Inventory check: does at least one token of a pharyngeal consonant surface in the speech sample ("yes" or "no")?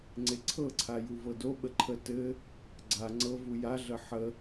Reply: yes